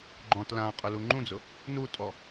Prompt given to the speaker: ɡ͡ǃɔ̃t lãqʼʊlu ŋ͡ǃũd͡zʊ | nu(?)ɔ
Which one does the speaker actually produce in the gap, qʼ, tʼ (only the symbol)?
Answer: tʼ